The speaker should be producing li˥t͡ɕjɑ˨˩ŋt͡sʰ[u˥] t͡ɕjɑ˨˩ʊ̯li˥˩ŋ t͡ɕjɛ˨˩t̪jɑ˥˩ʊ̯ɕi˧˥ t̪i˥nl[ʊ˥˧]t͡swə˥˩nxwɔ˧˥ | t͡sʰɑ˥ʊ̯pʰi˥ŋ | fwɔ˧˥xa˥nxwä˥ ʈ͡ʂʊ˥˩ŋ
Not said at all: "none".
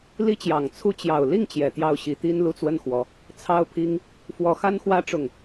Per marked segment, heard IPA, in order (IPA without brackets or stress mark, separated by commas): u˥˩, u˥˧